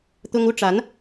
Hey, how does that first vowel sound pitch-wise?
high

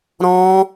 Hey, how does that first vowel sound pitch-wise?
high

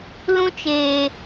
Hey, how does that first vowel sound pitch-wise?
high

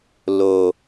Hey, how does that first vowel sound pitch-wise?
low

